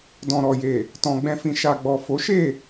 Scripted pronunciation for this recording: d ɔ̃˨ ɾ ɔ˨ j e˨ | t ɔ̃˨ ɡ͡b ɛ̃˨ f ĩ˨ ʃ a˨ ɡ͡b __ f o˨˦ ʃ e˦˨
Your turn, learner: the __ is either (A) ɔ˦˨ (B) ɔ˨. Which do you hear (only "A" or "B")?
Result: B